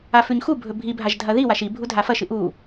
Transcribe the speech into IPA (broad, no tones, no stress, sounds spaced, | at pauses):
a f ʉ ɲ x u bʱ ɵ bʱ i bʱ a ʒ dʱ ɐ ð i w a ʃ i bʱ u dʱ a f ɐ ʃ ɨ ʔ u